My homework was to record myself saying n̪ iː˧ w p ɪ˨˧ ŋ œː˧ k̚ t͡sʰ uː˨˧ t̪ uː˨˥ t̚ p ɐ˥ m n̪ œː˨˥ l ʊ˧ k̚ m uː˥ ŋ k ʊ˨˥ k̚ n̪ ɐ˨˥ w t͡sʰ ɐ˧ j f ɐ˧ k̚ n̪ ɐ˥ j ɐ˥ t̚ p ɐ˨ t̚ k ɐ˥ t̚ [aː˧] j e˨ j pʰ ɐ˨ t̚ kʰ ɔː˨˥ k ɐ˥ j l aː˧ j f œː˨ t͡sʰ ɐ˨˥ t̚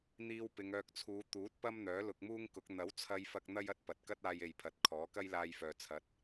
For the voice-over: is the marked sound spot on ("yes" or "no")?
yes